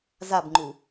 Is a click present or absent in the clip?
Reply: present